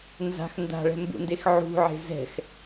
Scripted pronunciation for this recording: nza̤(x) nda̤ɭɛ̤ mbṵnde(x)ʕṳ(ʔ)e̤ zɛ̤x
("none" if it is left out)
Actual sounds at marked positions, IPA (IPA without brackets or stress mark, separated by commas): x, x, ʕ